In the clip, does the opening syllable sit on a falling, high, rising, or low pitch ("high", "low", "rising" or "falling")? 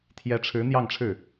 rising